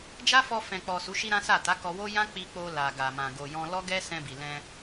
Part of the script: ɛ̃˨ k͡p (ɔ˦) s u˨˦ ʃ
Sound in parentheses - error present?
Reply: yes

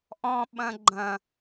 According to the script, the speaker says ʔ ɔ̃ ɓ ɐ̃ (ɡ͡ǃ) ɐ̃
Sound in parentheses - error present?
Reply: no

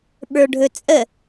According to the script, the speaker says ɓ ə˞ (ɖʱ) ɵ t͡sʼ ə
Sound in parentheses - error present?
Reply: no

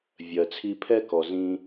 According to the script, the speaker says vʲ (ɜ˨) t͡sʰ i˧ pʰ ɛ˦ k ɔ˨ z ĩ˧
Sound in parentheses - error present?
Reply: no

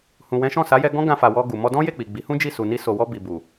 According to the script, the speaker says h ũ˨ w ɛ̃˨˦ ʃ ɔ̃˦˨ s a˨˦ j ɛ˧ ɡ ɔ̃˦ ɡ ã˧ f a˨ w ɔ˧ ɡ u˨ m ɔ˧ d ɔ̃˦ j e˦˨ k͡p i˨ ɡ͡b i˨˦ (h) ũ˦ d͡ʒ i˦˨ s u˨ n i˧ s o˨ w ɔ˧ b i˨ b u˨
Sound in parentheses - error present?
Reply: no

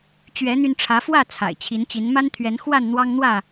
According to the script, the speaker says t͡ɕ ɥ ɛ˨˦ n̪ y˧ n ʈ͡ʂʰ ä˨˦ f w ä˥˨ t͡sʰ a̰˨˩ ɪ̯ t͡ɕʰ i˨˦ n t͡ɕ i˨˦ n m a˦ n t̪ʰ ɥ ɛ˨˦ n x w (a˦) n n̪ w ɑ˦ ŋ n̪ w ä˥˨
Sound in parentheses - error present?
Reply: yes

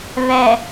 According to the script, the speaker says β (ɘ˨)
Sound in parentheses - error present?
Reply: yes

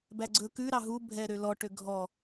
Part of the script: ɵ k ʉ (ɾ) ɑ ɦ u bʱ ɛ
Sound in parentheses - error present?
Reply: no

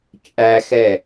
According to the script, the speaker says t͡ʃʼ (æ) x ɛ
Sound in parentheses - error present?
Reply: no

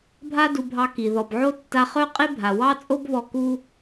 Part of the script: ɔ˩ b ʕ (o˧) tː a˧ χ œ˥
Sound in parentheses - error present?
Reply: no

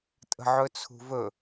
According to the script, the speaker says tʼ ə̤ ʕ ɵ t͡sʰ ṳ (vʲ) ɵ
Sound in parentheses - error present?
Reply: yes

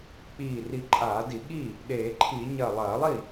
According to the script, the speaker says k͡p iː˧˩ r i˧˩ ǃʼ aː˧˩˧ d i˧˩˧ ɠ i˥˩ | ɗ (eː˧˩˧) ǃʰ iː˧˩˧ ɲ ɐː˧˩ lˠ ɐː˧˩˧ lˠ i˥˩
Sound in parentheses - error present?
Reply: no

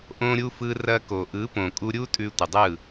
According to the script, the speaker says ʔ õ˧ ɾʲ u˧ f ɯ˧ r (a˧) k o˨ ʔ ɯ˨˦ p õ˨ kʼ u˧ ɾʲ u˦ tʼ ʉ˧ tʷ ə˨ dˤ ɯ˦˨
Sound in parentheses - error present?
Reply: yes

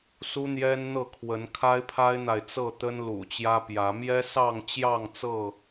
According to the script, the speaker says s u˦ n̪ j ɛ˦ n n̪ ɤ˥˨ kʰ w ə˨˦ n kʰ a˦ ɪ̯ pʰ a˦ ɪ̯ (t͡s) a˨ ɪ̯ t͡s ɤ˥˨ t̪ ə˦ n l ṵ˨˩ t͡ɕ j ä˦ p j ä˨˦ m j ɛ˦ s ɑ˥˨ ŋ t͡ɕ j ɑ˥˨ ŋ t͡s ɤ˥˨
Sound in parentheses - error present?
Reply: yes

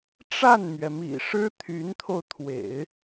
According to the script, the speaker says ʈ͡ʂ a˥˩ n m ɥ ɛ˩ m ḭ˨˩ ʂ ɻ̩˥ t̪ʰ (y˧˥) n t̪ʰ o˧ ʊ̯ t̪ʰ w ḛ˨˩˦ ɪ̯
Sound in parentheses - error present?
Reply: no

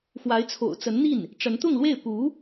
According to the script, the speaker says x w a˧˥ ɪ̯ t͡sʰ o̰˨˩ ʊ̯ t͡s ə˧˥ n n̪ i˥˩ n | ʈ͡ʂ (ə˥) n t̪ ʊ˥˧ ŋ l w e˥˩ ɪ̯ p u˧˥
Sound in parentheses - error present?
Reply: yes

